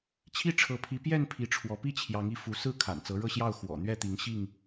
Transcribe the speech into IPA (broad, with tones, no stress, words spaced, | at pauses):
t͡ɕʰi˦ ʈ͡ʂʰɤ˨˦pʰi˨˦ pjɛ˥˨n pʰi˨˦ʈ͡ʂʰwɔ˨˦ pi˥˨t͡ɕʰjɑ˨˦ŋi˨˦ fu˨˦ sɹ̩˥˨ kʰa̰˨˩nt͡sɤ˨˦ɻɤ˥˨ɕjɑ˥˨ʊ̯ xwɔ̰˨˩ n̪ɥɛ˥˨t̪i˨˦ŋ ɕi˥˨ŋ